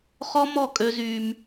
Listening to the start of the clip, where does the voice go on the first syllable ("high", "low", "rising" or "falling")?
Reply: high